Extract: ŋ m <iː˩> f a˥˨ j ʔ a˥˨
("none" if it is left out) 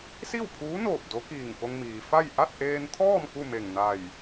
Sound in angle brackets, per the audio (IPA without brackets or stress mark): iː˩